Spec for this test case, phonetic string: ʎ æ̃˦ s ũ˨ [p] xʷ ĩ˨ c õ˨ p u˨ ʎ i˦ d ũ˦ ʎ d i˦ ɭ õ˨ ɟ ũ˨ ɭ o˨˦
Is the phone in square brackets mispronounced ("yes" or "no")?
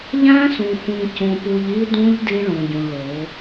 yes